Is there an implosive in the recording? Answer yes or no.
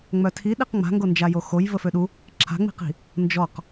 yes